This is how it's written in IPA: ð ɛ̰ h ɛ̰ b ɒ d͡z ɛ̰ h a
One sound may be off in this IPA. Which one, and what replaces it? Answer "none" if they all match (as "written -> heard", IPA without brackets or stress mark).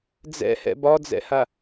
ð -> d͡z